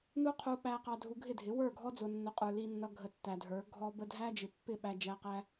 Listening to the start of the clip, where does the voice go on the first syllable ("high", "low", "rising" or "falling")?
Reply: high